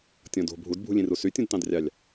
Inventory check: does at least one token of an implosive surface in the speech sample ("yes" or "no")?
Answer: no